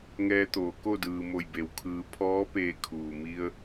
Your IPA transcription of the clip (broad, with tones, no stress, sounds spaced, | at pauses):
ŋ ɛː˧ t̪ oː˩˧ k o˥˨ d ɯː˩ m o˧˩ j b e˩ w kʰ ɯː˩˧ pʰ ɔː˧˥ p eː˧ kʰ uː˩ m i˧ ə̯